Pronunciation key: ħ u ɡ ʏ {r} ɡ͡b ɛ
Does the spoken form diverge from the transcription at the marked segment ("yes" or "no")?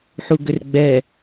no